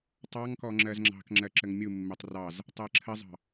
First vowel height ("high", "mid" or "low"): low